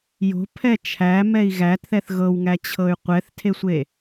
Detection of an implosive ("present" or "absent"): absent